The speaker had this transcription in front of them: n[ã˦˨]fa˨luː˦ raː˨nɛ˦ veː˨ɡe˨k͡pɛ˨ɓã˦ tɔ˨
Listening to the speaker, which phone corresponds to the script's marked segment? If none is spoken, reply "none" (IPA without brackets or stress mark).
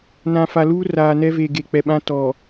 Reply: ã˨